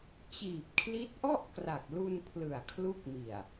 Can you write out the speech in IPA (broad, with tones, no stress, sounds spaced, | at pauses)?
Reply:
t͡ɕ iː˨˩ p̚ kʰ l i˦˥ t̚ ʔ ɔ˥˩ ʔ k r a˨˩ k̚ l u˧ n pʰ l ɯ˨˩ a̯ kʰ l u˦˥ k̚ m i˨˩ a̯